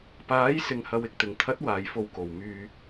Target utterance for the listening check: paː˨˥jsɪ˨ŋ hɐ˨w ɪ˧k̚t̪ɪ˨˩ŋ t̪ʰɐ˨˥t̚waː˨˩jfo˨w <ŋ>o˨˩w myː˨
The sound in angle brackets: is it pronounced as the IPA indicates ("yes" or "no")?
no